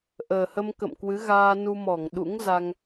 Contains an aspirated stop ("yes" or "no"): no